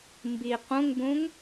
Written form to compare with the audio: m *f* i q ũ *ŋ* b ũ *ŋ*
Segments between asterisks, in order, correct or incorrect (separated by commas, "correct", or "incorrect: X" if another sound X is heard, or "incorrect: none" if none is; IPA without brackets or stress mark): incorrect: b, correct, correct